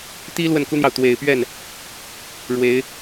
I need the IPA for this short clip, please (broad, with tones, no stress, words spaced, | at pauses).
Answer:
t̪i˥ lwə˥˩nku˥n̪jɑ˨ʊ̯ t̪we˨˩ɪ̯pɥɛ˥˩n | ɻwe˧˥ɪ̯